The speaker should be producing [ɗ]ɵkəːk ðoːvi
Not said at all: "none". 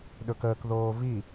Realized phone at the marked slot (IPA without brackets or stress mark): ɗ